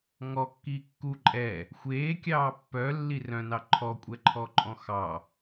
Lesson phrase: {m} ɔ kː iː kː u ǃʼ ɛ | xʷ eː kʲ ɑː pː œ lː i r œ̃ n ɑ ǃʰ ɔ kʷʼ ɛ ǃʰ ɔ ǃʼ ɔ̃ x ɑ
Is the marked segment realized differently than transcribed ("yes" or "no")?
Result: yes